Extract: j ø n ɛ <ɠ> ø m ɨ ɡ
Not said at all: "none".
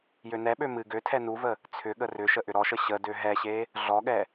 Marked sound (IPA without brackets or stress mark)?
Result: ɓ